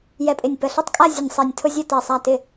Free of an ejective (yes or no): no